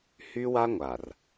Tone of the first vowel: high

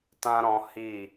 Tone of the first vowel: high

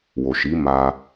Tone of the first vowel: low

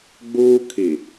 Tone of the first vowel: high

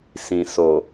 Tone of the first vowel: low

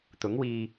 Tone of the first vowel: rising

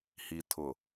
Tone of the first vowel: low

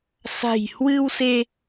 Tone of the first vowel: low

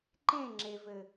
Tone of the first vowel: falling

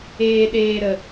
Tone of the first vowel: low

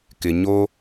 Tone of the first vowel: low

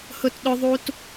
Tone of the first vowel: high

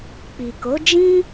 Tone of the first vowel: low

